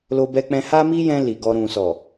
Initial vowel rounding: rounded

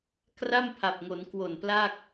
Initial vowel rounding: unrounded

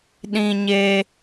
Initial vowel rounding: unrounded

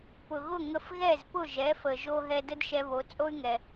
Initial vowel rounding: rounded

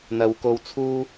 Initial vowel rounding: unrounded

